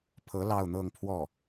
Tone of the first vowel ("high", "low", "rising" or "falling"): rising